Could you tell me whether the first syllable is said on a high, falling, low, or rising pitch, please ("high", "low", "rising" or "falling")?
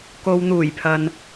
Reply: low